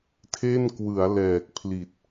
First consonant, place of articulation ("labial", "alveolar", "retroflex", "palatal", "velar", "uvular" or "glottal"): alveolar